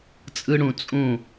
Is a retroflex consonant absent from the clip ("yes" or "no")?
no